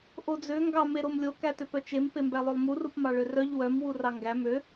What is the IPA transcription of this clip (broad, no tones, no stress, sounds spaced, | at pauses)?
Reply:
ʔ o d͡z ø ŋ ɡ ɑ m e ɾ o m lʲ o k æ t ø p œ t͡ʃ e m p e m b æ lˠ ø lˠ m u r u p m ɑ ɭ ø r œ ʎ w œ m w u r ɑ ŋ ɡ æ m ø